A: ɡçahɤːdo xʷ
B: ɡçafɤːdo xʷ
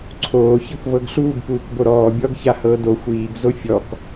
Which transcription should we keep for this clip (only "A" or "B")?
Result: A